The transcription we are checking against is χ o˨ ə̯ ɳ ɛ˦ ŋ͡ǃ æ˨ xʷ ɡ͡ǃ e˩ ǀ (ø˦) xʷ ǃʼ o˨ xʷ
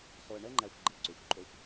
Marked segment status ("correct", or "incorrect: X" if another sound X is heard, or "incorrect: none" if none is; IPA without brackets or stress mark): incorrect: ø˩